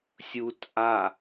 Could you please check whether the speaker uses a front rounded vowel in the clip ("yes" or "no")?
no